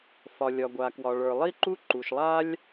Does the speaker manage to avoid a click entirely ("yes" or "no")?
no